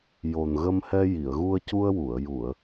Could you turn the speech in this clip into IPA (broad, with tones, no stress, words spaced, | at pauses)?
jo˨˩nɣə˧mhɛ˧ ji˨˩˨ə̯ɣu˧ə̯cu˧ə̯wu˨˩˨ə̯ ju˨˩˨ə̯